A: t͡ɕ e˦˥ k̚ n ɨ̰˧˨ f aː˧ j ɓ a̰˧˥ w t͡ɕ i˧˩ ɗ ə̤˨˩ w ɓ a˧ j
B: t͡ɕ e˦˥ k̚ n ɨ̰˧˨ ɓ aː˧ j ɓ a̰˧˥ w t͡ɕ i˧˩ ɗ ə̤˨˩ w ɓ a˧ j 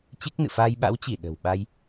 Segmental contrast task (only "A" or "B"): A